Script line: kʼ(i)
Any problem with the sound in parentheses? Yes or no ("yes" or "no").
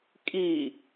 no